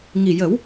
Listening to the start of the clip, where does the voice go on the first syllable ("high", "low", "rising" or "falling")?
low